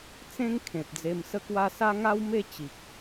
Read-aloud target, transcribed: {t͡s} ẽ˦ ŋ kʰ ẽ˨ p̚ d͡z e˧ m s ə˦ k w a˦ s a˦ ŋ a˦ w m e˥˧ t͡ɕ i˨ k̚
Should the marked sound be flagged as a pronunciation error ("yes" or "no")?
no